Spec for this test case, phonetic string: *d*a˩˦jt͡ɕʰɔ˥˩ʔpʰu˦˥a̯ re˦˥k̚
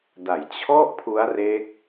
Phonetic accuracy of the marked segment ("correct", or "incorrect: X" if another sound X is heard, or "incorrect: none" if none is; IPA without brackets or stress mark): correct